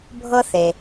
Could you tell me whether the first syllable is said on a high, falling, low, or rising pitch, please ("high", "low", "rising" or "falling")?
high